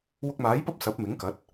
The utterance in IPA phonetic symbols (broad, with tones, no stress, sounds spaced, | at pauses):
w ʊ˧ k̚ m aː˨˥ j p ɐ˥ p̚ s ɐ˨˥ p̚ m ɪ˨˥ ŋ k ɐ˨˥ t̚